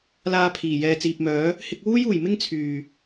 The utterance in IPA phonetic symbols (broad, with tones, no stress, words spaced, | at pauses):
laː˧pʰiː˨˩ jɛː˨t͡siː˨p̚mœː˨˥ | hɪ˧k̚wuː˥juː˨˩j mɪ˥ŋt͡sʰyː˨˩